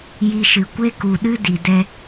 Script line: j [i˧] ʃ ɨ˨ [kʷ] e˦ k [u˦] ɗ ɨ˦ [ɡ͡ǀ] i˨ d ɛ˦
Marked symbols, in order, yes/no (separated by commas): yes, yes, no, no